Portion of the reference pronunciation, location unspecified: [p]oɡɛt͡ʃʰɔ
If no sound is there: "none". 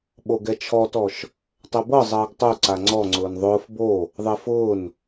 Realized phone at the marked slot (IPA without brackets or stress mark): ɓ